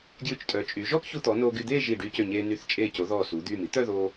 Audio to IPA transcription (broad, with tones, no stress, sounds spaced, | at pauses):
ɡ j ʉ˧˩ t͡ʃ tʼ œː˩˧ t͡ʃʼ yː˩˧ ʒ ɔː˥ k ç u˧ t̪ ɔ˩˧ n oː˧ ɡ y˧ d̪ eː˥˧ ʒ iː˧˩ ɖ y˧ c ø˧˩ ɲ eː˧ n y˧ θ t͡ʃʼ eː˧˩ c o˩˧ ð ɔː˧˩ s u˩˧ d̪ yː˧˩ m i˥ t̪ œ˥˧ ð oː˧